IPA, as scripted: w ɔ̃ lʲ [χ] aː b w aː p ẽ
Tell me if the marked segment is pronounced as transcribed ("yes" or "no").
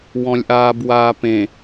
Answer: no